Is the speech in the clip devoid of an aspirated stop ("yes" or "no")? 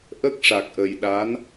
yes